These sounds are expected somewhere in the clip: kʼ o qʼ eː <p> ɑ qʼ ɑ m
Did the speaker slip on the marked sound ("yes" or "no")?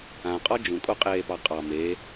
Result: no